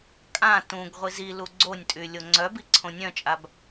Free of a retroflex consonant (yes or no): yes